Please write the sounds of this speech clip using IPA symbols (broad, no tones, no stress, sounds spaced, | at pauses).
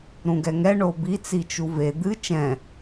ɾ ũ ɡ ɛ ŋ ɛ ɳ o b i t͡s i t͡ʃ u v e d̪ ɨ t͡ʃ ɛ̃